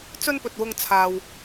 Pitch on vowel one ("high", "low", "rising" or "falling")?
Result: high